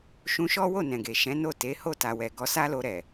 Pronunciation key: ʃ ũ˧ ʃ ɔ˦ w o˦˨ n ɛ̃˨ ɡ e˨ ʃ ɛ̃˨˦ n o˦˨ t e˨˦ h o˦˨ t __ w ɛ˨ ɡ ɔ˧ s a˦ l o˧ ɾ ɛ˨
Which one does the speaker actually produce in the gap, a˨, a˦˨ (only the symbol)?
a˨